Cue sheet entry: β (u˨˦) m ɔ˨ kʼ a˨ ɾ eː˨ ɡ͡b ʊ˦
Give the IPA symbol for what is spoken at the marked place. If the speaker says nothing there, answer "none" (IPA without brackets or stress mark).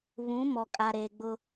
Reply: ũ˨˦